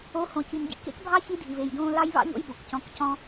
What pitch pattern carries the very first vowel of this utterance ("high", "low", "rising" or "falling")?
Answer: rising